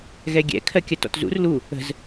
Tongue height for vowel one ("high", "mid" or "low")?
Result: mid